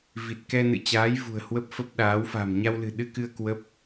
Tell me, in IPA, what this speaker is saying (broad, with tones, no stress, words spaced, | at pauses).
vi˨˩t̚kɛ˧nɨ̰˧˨t͡ɕaː˨˦j vṳ˨˩ə̯hwə˦˥p̚fə˦˥p̚ɗaː˨˦w fa̤˨˩m ɲa˧wlɨ̤˨˩ɗɨ˧kɨ˧ə̯ kwə˦˥p̚